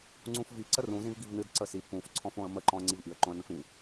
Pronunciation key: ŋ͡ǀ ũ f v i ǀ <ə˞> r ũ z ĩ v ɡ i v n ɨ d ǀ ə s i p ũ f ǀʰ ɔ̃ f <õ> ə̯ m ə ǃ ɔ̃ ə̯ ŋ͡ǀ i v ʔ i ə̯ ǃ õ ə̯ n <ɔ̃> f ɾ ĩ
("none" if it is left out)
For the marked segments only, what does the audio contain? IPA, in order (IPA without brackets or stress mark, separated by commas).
ə, õ, ə̃